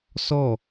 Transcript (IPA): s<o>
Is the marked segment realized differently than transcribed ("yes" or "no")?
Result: yes